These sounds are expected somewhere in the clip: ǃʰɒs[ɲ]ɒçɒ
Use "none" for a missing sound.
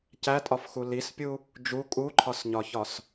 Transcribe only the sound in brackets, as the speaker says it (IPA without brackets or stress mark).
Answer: ɲ